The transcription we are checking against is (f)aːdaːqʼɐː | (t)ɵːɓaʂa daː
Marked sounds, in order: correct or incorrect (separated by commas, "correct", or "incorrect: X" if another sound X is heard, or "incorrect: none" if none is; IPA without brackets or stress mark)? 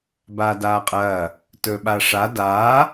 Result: incorrect: b, correct